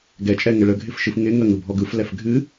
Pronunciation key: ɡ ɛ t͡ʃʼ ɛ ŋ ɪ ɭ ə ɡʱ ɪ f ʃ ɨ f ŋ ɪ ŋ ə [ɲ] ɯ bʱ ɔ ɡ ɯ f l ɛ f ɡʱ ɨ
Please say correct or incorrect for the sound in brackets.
incorrect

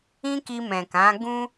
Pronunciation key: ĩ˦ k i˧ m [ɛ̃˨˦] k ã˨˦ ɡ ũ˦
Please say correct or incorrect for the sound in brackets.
incorrect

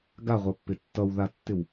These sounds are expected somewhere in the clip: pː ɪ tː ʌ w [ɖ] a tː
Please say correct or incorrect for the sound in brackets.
incorrect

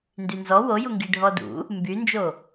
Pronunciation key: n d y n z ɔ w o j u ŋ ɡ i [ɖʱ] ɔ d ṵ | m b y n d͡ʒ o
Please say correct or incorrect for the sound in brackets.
correct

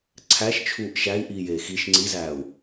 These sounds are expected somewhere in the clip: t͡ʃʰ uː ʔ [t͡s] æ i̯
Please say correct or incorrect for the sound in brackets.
incorrect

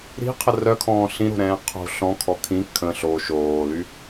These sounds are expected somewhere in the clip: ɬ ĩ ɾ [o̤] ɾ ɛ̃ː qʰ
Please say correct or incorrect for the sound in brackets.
correct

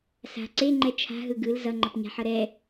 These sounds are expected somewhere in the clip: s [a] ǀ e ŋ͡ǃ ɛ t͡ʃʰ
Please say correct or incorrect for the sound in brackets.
incorrect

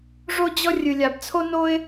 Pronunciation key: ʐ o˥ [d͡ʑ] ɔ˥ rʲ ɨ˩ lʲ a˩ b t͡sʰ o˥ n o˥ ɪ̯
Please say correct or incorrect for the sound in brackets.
correct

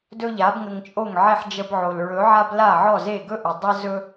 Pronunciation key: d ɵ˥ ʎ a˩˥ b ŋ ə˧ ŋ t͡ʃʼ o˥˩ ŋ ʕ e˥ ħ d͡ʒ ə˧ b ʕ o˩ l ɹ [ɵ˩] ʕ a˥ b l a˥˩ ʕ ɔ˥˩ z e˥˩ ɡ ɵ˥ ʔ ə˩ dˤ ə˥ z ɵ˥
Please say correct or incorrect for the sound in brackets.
incorrect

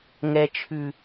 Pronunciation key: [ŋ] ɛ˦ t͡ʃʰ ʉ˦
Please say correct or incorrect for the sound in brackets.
correct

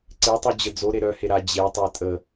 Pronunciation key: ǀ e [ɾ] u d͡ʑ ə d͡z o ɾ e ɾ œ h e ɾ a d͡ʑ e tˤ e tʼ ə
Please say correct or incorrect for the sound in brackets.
incorrect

